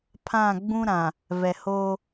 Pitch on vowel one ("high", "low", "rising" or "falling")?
falling